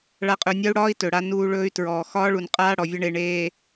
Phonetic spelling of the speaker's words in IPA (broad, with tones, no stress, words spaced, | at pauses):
ɭa˨qʼɵ˨nʲɒ˦u̯ɽɒː˦i̯ tɵ˨ɽa˦nuː˦ɭɵː˦y̯ tɹɔː˨ xɒː˦ɭu˨n qʼaː˦ ɽɔ˨vʲʌ˦ɳe˨ ɳeː˨